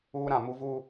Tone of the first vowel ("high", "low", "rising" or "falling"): high